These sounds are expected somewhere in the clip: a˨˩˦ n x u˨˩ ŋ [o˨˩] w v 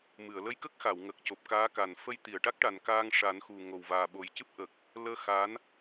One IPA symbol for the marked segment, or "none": o˨˩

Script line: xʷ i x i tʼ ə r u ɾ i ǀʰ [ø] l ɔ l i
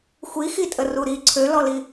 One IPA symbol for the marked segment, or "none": ø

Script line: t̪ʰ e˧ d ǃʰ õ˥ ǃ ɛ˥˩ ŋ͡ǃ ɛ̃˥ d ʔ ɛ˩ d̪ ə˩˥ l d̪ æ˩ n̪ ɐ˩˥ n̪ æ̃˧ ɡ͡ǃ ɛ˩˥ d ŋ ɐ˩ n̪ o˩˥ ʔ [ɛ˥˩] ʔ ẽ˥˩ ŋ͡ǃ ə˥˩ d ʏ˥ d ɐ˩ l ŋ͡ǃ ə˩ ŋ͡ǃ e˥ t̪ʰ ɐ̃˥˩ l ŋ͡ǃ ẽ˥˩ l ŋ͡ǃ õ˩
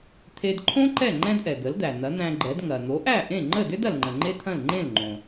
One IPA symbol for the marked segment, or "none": æ˥˩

